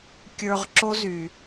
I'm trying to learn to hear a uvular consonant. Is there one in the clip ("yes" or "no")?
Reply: yes